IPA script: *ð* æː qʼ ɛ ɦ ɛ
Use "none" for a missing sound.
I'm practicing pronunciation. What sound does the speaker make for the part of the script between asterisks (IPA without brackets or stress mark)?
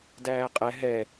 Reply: d